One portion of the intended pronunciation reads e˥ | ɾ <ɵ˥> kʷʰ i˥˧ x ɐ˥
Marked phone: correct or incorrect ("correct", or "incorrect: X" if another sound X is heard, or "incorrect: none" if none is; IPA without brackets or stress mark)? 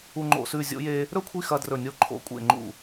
correct